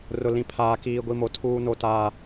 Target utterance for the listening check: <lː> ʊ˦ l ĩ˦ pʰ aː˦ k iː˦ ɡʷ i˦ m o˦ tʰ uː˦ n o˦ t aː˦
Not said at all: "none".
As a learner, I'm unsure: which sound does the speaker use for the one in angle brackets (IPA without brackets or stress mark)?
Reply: r